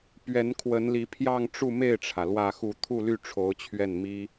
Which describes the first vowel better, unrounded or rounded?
unrounded